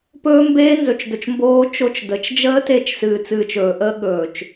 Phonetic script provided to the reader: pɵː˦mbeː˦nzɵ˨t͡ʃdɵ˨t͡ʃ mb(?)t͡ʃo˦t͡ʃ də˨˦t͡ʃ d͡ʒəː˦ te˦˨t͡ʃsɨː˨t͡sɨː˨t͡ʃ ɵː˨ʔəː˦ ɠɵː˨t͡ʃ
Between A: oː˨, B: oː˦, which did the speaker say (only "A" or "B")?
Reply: B